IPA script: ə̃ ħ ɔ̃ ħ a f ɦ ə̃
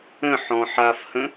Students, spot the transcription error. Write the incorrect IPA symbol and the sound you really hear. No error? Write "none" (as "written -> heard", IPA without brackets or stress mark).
ɦ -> h